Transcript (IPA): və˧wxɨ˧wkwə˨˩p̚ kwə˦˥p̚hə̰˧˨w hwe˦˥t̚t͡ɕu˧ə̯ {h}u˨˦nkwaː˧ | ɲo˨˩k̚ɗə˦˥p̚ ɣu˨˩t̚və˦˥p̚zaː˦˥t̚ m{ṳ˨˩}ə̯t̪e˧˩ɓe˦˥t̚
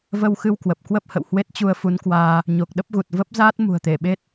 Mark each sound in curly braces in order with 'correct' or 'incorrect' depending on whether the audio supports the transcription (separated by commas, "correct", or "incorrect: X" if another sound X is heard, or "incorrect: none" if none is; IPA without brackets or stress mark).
incorrect: f, correct